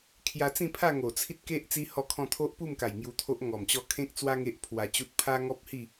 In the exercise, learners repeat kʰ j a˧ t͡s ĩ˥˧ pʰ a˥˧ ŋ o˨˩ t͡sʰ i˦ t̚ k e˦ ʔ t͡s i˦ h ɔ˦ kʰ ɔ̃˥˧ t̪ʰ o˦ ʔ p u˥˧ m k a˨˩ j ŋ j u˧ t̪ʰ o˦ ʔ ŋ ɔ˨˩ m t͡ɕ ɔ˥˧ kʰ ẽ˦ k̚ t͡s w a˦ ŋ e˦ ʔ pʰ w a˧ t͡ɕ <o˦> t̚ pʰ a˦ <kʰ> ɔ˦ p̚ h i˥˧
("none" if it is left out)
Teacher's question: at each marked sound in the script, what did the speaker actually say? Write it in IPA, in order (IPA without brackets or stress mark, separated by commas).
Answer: u˦, ŋ